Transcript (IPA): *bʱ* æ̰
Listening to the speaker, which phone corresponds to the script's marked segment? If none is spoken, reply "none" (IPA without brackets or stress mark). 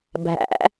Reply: bʱ